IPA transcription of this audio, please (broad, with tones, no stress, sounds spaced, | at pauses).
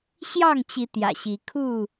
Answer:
ɕ j ɑ˥˨ ŋ t͡ɕ i˨˦ t̪ j ä̰˨˩ ɕ i˨˦ kʰ u˥˨